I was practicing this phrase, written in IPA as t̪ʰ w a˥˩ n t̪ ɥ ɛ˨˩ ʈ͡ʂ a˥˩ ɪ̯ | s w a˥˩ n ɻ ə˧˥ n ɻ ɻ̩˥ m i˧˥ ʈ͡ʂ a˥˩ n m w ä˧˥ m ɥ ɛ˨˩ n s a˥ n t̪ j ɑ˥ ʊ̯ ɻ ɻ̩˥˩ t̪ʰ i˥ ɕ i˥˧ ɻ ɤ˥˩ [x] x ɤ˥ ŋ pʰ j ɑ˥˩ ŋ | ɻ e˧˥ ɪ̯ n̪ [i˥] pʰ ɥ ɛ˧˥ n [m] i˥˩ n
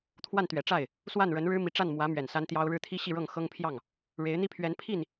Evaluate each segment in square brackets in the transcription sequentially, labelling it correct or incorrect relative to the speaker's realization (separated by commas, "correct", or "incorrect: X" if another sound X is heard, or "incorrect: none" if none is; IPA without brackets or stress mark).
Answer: incorrect: ŋ, correct, incorrect: pʰ